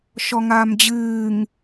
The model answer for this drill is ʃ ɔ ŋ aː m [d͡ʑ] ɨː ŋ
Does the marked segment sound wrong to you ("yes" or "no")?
no